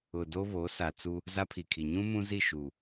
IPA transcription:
ʊ˨ d o˦ β o˨˦ s a˨ t͡s u˦ | z a˦ pʰ i˨ kʰ i˨ ɲ ũ˦ m ũ˦ z i˦˨ ʃ u˨

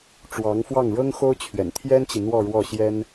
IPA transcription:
ʈ͡ʂ w ɑ˧˥ ŋ f w ɑ˥˩ ŋ ɻ ɤ˥ ŋ x o˥ ʊ̯ t͡ɕʰ ɥ ɛ̰˨˩ n t̪ʰ j ɛ˥ n t͡ɕ i˨ n̪ w ɔ˥˧ ɻ w ɔ˥˩ ɕ j ɛ˥ n

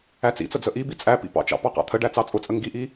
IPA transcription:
æ t͡s ḭ t͡s ə d͡z ə ʔ i b i t͡sʼ æ p ḭ p ɑ̰ t͡ʃ ɑ̰ p ɑ q ɑ̰ t̪ʰ ə ɖ æ t͡s ɑ t͡sʼ ʊ t͡sʼ ə ŋ ɡ i ʔ i

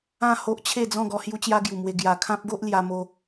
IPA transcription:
ã˥˧ h o˦ ʔ t͡ɕʰ e˥˧ d͡z ɔ̃˥˧ ɡ ɔ˧ h j u˦ t͡ɕ j a˦ ɡ j u˨˩ m w e˧ ɡ j a˨˩ kʰ ã˦ p̚ ɡ o˦ ʔ l j a˧ m o˧

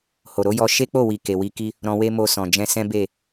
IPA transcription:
h o˨ ɾ o˨˦ j ɔ˧ ʃ e˦ k͡p o˦˨ w i˨ k e˨ w i˧ k i˦ | ɾ ɔ̃˧ w e˦ m o˧ s ɔ̃˨ d͡ʒ ɛ̃˧ s ɛ̃˦ b e˦˨

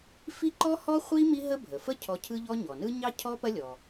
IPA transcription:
f i˥ ǃ ɔ˥ h ɔ˥ χʷ i˥ m i˥ ɦ ə˥ bʱ ə˩ f ə˥ cʰ ɔ˧ cʰ ɯ˥ ʎ ɔ˥ ɲ ɔ˩ n ɯ˥ ɲ ɑ˥ cʰ ɔ˥ p ɐ˥ lʲ ɔ˩

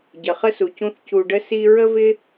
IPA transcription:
ɟ ə˩ χ ə˥ s u˩ c ũ˦ θ c u˨ ɖ ə˥ s i˦ ɹ ə˥ v ɪ˥

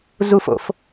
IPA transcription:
z u f o̰ f

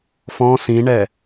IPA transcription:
f ɔ̃ s ĩ ɳ ɛ

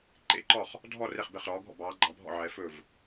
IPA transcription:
ǃ ḛ˥˨ ǃ ɔ˥˨ χ | dʱ ɔ˥˨ r e˥˨ χ b e˥˨ χ ɾ ɔː˧˥ ɡʱ ɔ̰˥˨ b ɑː˧˥ ɡ͡ǃ ɑ˧˥ bʱ ɔ̰˥˨ ʕ ɛ˧˥ f ɵ˥˨ v

